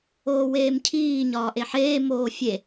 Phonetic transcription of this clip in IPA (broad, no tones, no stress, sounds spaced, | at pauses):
oː w eː m cʰ iː ɲ ɒː ʔ e ħ eː m oː fʲ e